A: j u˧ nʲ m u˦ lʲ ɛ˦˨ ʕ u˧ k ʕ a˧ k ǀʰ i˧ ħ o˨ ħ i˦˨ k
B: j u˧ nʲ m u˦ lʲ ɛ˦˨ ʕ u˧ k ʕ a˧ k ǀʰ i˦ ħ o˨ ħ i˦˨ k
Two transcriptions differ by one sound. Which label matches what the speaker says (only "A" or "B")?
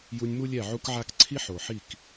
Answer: B